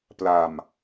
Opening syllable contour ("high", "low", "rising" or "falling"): low